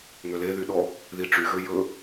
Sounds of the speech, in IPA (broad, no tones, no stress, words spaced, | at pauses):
ŋøleðy ɗɔ | ðiʈ͡ʂyɣø jɵ